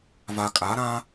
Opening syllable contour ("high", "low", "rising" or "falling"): low